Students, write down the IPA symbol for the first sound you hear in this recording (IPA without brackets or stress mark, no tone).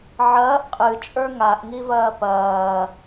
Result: ʕ